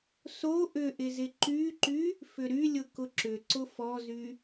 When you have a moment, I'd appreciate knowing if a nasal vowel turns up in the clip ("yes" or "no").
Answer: no